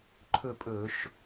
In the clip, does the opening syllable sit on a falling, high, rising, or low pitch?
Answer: falling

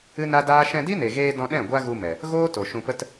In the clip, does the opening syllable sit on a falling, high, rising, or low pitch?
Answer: high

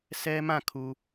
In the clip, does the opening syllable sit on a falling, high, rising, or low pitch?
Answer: high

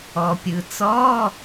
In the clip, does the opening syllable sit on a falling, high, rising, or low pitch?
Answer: low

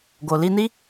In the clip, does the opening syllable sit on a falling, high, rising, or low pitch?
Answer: low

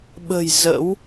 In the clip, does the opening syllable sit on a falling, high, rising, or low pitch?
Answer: low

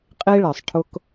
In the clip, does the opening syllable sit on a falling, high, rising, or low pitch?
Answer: high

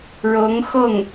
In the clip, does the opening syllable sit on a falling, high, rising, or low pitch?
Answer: rising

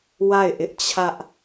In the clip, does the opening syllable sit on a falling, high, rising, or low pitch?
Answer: falling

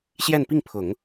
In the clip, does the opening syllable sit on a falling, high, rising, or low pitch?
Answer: falling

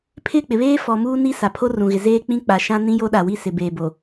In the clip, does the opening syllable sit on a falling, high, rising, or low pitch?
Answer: falling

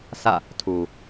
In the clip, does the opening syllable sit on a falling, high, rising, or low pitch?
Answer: falling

